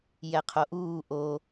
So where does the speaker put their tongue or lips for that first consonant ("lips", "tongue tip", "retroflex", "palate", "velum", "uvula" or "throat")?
palate